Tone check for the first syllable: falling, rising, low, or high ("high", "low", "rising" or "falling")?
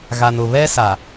low